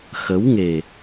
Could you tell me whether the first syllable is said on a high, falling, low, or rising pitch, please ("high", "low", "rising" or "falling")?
rising